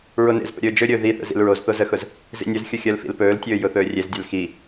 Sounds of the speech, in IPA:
ɹ o n ḛ z p ə̰ ɾʲ ɵː d͡ʒ ɵ ɾʲ ɵː ð i θ ə̰ z ḭ l ɹ o z θ o z ə x ʊ z | z ḭ nʲ ɵ z xʲ ʊ xʲ əː l f ḭ l p ɵː l tʲ ɵː j ʊ θ ɵː rʲ e z dʲ œ l x i

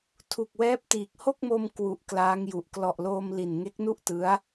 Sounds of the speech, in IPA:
tʰ u˨˩ k̚ w ɛː˦˥ p̚ t iː˨˩ k̚ h o˥˩ k̚ m o˧ m k w u˨˩ ʔ k l aː˦˥ ŋ j u˨˩ ʔ k l ɔ˨˩ ʔ l oː˧ m l i˨˩ n ŋ e˦˥ k̚ n u˥˩ ʔ t ɯ˦˥ a̯

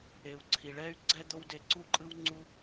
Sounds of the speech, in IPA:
e˩ u̯ ǀʰ i˩ ɭ ɛ˦ y̯ ɡ͡ǀ ɛ˥ d̪ o˥ w d e˦ ǀ u˥ ǃʼ ɯ˥ w ŋ͡ǀ u˥

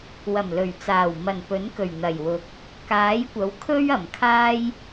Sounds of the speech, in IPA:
w ɐ˨˩ m l ɵ˨˩ ɥ t͡s aː˨˩ w m ɐ˨˩ n p ɵ˨˥ n k ɵ˨˩ ɥ n̪ ɐ˨˩ j w ʊ˨ k̚ | k aː˨˥ j kʷ ɐ˨˥ w kʰ ɵ˥ ɥ ɐ˨˩ m kʰ aː˥ j

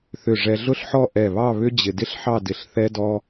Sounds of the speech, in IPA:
θ ʏ˧˩ ʐ ɛ˧ ɮ ʊ˥ ɬ ħ ɔ˥˧ ʔ ɛ˧˩ β ɑ˥˧ β ʏ˥ d͡ʑ ɪ˧ d ɪ˥ ɬ ħ ɑ˥˧ d ɪ˧˩ ɬ θ ɛ˥ d ɔ˥

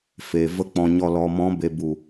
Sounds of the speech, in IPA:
f e˨ v ə˦ k͡p ɔ̃˧ ɲ ɔ˧ l ɔ˨ m ɔ̃˨˦ b e˨ b u˨

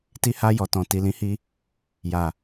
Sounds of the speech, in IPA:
t i˧ h a˧ j ɔ˨ t ɔ̃˨ t i˨ l ĩ˨˦ h i˧ | j a˨

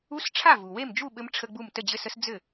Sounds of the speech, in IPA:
u˧˥˧ s ʈ͡ʂʰ a˥˩ v u˩ w e˥˩ m d͡ʒ u˥˩ ɓ ɘ˦˥ m ʈ͡ʂʰ ə˧˥˧ ɡ͡b u˥˩ m t ə˥˩ d͡ʑ ɘ˧˥˧ s ə˦˥ s d͡z ɘ˥˩

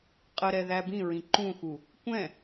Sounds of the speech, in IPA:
qʼ ə ɾ ɛ ð æ b ĩ ɹ ĩ ǃ ũ x u | kʷ ɛ̃

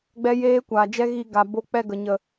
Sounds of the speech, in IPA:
ɡ͡b ɛ˦ j eː˦ kʷ aː˨ d͡ʒ ɛ˦ ɣ i˧ ɡ a˨ b o˧ k͡p ɛ˧ ɡ ə˨ ɲ ə˨

